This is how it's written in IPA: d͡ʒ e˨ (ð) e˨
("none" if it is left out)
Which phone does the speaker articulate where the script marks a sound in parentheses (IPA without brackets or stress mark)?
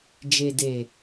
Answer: d